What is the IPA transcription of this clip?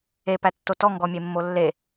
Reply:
e p æ tː o t ɔ ŋ ɡ ɔ mʲ e mː o lː e

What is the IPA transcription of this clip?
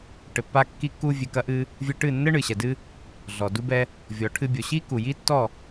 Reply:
ʈ ɘ˨ pː a˧ kː i˧ kː u˧ vʲ e˨ k ɐ˧ ʔ ɨ˧ | vʲ ɨ˧ ʈ ɨ˦˨ nː ɘ˦ ɳ ɨ˨ ɕ ɛ˨ d ɨ˦ | ɮ ɔ˨ d u˧ b ɛ˧ | vʲ ɔ˨ ʈʰ ɨ˧ bʲ o˨ ɕ i˦ k u˨ j i˦ tː ɔ˦˨

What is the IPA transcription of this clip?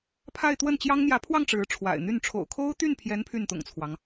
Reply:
pʰ a˥˧ ɪ̯ t̪ w ə˥˩ n t͡ɕ j ɑ˥ ŋ n̪ j ä˧˥ pʰ w ɑ˥˩ ŋ ʈ͡ʂ ɻ̩˧˥ ʈ͡ʂʰ w a̰˨˩ ɪ̯ n̪ y˥˩ n ʈ͡ʂʰ o̰˨˩ ʊ̯ kʰ o˥ ʊ̯ t̪ y˥˩ n pʰ j ɛ˧˥ n pʰ y˥˩ n t̪ ʊ̰˨˩ ŋ t͡sʰ w ɑ˦ ŋ

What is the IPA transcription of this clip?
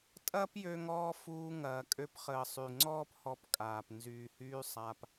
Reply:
tʼ ɐː˦ p j ø˧ ŋ ɔː˧ f uː˧ ŋ ɐː˨ kʼ ø˧ p χ əː˨ sˤ y˨ ŋ͡ǀ ɔː˦ p h ɔ˧ p kʼ aː˨ p n z yː˨ h yː˧ sˤ a˧ p

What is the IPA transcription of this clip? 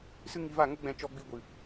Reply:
s ɨ˦ ŋ i˧ v a˦˨ ŋ o˦ ɡ͡b ɛ̃˧ t͡ʃ ɔ˧ ɡ͡b i˧ ɡʷ ɨ˨

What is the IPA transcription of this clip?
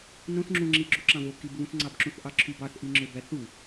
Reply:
n õ θ ŋ͡ǁ ũ ŋ͡ǁ i ɡ͡ǁ u ǁ ɑ̃ v o k i b β ũ θ ŋ͡ǀ ɑ b ǁ ũ θ ʔ ɑ ǁʰ y b ɑ θ ʔ i ŋ͡ǁ ø b æ θ u

